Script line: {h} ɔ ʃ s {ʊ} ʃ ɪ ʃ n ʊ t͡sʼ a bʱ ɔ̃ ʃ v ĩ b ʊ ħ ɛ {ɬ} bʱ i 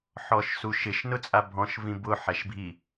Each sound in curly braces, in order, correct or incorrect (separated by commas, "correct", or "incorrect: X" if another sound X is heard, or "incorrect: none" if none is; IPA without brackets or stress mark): incorrect: ħ, incorrect: u, incorrect: ʃ